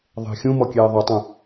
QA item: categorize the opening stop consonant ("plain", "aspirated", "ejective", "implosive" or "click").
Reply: plain